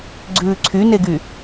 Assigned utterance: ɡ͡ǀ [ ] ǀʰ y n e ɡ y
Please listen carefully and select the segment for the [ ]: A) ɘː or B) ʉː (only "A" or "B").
B